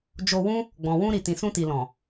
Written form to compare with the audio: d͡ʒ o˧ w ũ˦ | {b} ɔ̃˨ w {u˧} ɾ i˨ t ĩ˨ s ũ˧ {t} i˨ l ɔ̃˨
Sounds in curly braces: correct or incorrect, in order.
incorrect: ɡ͡b, incorrect: ũ˧, correct

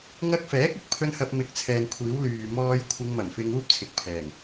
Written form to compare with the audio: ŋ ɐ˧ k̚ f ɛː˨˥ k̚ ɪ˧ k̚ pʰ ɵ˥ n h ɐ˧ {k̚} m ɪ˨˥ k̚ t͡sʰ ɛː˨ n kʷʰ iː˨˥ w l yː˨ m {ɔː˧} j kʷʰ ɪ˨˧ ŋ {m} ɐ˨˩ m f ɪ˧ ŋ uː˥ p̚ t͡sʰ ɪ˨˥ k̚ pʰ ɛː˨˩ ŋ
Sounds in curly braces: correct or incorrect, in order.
incorrect: p̚, correct, correct

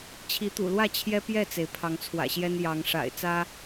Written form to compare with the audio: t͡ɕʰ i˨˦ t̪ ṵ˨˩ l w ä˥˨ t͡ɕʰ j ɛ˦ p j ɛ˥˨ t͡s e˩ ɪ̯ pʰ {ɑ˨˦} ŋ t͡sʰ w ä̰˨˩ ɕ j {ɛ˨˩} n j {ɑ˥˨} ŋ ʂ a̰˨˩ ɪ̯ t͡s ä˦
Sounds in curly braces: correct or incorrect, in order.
correct, incorrect: ɛ˦, incorrect: ɑ˨˦

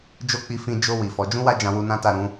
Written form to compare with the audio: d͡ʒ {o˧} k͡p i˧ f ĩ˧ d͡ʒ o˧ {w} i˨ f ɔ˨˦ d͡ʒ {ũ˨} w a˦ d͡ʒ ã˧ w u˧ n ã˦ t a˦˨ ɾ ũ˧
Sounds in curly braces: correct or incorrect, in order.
incorrect: o˦, correct, incorrect: ũ˦

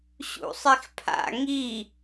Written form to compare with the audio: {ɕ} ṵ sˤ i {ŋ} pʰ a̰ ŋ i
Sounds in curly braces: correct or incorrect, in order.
correct, incorrect: x

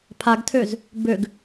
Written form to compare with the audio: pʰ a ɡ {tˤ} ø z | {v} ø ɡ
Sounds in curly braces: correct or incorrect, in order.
incorrect: tʰ, incorrect: b

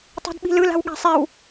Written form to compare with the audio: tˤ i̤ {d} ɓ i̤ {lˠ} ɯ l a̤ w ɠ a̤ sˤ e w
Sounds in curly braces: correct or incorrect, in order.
correct, incorrect: l

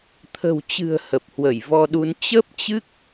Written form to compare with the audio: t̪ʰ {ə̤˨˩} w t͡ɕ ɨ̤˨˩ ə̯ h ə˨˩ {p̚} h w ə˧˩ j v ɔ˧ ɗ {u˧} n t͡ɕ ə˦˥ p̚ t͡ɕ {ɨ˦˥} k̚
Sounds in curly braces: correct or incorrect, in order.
correct, correct, correct, correct

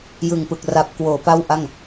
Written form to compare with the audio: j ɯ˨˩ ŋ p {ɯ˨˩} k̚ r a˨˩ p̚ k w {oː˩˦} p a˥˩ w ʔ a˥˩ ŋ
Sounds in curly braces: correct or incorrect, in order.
correct, correct

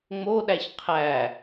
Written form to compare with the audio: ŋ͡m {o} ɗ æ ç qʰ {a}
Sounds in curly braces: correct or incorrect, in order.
correct, incorrect: æ

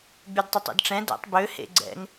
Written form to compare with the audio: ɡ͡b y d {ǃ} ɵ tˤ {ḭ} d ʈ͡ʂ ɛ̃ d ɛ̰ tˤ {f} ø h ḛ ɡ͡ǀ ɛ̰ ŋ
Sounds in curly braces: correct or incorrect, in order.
incorrect: tˤ, incorrect: ḛ, incorrect: b

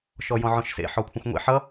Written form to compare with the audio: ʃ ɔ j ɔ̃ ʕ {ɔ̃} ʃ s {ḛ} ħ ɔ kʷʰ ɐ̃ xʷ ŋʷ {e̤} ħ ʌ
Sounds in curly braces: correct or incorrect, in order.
correct, correct, incorrect: ḛ

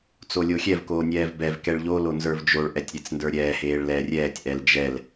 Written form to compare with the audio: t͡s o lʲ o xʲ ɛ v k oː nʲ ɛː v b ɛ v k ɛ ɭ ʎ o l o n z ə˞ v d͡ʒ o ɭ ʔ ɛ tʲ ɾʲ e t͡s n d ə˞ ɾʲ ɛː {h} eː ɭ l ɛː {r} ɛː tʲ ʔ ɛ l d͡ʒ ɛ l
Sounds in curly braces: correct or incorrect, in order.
correct, incorrect: rʲ

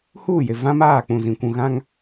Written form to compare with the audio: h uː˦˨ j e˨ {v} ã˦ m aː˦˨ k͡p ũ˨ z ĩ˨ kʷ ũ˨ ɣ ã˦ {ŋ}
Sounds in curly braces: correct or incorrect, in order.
correct, correct

